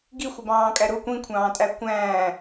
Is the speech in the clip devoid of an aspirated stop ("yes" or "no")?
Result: no